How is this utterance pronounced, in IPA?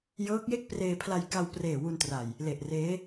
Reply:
j ɤː˦˥ k̚ j e˥˩ k̚ p r eː˧ pʰ l a˧ j k a˧ w p r eː˨˩ w u˧ n t r a˨˩ j | l e˨˩ ʔ r eː˦˥

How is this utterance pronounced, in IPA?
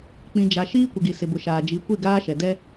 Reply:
k͡p ĩ˨ d͡ʒ a˨ ʃ iː˦ kʷ ɪ˨ ɡ i˨ s ɪ˨ b ʊ˨ ʃ aː˨ d͡ʒ i˨˦ kʷ i˦˨ ɡ aː˦ ʃ ɛ˨ d ɛ˦

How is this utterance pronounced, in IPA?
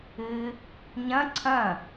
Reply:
ɨ | ɲ ɐ̃ ǀʰ ɐ̃

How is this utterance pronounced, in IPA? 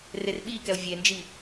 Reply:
r e r ɓ i k ɛ o̯ vʲ e n d͡ʒ i

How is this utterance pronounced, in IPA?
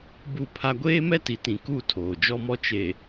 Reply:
b u˦˨ pʰ a˦ ɡʷ eː˦ m ɛ˦ t i˨ t ĩ˨ k u˦˨ tʰ oː˨ d͡ʒ ɔ˦ m ɔ˦ t͡ʃ e˨

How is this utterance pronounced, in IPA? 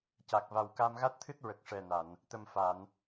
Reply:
c a˨˩ k̚ v a˨˩ w k a˧ m ɣ a˦˥ t̚ t̪ʰ ɨ˦˥ t̚ ɹ ə˨˩ k̚ ʂ ɛ˨˩ n a˨˩˨ n | t̪ ə˨˩ m f a˨˩˨ n

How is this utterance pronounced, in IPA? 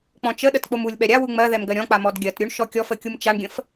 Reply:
k͡p ɔ̃ t͡ʃ ə ɗ ə t k͡p o m u lʲ ɓ ɛ ɾʲ a w u ŋ͡m ɜ ð ɛ m ɡ ɜ ɾʲ ɔ̃ k͡p a m ɔ d ɡʲ ɜ t ɾʲ u ɳ ʃ ɔ kʲ ɔ f ə kʲ u m t͡ʃ a ɳ ɡʲ ə̃ f

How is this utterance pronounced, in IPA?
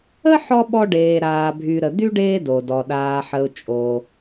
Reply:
ə˥ ħ ɔ˥ ɓ ɔ˦ ɖ eː˨ ɾ aː˨ bʱ y˨ ɾ ə˨ d̪ y˥ ɖ eː˦ d o˩ d ɔ˩ ɗ aː˨ ħ ə˨ ʊ̯ t͡ʃʼ o˨

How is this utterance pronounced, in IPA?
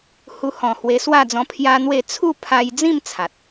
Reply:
h u˧ h ɔ̃˨˩ h w e˧ s w a˥˧ d͡z ɔ̃˧ pʰ j a˦ n̪ w e˥˧ t͡sʰ u˥˧ pʰ a˧ j d͡z ĩ˥˧ m t͡sʰ a˨ t̚

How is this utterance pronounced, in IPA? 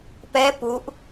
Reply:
p ɛ p u ʔ

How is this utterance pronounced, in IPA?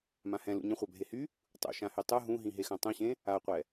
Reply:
m ã h ɛ̃ l ṵ ɲ ə̃ χʷ a bʱ e h y | tˤ ṵ ʃ ã h y tˤ ɯ ɦ ũ ɦ ĩ ɦ e x ã tˤ ũ ɕ ẽ | a qʷ ɛ

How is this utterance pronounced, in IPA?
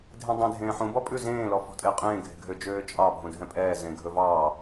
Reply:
dʱ ẽ dˤ ẽ dʱ ẽː ħ ũ b ɔ pʼ ʉ z ẽː l ɔ f ɔ̤ tʼ e qʼ ẽː ɡʱ e̤ ɡʱ ø d͡ʒ øː t͡ʃʼ ɑ bʱ ũ dʱ ɛ̃ pʼ ɛː z ẽ ɡʱ ɵ v ɑː

